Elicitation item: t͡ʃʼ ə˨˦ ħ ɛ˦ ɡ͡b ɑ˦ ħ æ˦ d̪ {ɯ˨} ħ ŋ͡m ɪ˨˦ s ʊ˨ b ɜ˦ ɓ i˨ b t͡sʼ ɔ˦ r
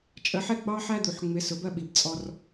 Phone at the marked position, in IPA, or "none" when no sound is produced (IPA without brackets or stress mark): u˨